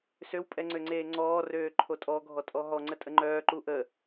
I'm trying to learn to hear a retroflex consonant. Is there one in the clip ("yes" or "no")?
no